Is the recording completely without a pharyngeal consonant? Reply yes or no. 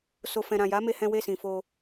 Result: yes